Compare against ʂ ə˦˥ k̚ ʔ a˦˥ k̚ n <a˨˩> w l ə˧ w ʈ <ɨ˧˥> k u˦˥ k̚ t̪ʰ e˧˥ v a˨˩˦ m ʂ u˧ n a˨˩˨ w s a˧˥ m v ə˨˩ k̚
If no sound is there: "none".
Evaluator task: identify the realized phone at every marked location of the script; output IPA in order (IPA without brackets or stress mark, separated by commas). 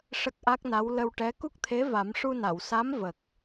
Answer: a˧˥, ɛ˧˥